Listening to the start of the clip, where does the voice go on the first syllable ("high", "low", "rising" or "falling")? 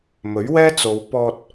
rising